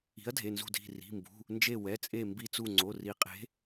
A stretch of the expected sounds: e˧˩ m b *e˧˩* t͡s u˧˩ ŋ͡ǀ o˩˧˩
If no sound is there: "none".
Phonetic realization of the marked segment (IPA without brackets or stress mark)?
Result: i˧˩